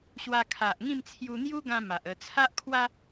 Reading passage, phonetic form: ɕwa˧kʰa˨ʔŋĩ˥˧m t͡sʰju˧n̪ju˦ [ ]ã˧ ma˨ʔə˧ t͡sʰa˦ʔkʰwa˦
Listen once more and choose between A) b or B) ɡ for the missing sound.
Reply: B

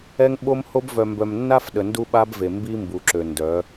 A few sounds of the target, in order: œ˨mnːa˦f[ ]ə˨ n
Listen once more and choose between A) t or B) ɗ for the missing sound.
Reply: B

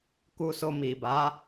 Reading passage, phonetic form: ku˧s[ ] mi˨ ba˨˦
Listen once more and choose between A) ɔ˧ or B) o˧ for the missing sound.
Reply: B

